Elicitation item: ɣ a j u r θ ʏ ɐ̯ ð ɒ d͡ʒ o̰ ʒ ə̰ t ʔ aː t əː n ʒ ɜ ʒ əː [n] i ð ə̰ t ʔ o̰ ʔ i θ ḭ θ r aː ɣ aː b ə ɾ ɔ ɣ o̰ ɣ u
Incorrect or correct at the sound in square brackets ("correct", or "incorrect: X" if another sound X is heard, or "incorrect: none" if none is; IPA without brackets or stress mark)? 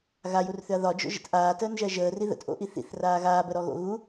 incorrect: r